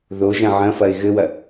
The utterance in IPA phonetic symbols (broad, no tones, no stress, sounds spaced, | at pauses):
ð o ʒ ɐ̃ ʕ ɐ̃ f ɐ ɪ̯ ɣ ɘ w ɐ